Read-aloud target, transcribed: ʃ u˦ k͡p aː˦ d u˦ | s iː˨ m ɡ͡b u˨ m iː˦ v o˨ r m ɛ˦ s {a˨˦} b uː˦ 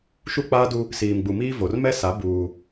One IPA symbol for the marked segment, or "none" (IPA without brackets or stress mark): a˨˦